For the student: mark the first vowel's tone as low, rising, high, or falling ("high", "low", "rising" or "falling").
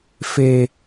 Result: high